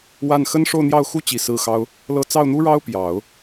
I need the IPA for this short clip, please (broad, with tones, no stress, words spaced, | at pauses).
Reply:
wa˥˩n xə˥nʂo˥˧ʊ̯n̪jɑ˥˩ʊ̯ xu˥t͡ɕi˨˩ sɹ̩˥˩xɑ˥ʊ̯ | lɤ˥˧ t͡sɑ˥˩ʊ̯n̪u˥ɻɑ˥ʊ̯ pjɑ˨˩˦ʊ̯